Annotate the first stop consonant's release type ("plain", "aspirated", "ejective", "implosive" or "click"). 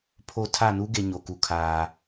aspirated